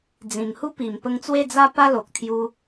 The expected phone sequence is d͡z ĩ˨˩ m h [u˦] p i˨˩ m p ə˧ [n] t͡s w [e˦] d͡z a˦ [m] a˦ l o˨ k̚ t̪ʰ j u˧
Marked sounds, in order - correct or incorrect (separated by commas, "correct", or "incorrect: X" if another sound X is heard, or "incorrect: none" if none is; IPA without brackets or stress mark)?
correct, incorrect: ŋ, incorrect: e˥˧, incorrect: p